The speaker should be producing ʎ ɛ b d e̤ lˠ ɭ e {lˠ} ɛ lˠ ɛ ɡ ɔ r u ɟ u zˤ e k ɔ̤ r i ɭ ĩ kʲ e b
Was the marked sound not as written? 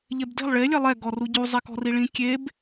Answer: yes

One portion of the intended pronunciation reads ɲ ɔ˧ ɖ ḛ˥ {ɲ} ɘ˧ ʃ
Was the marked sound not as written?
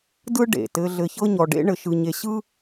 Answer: yes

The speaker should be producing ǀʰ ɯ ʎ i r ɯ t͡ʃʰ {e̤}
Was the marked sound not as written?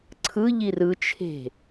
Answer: no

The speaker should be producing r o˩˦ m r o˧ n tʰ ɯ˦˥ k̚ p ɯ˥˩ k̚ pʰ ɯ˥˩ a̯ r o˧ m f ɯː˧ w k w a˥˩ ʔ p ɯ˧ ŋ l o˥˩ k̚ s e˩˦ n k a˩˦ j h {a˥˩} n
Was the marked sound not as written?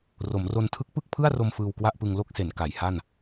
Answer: no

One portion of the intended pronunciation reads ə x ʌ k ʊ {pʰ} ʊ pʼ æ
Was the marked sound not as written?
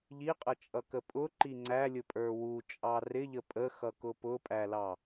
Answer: yes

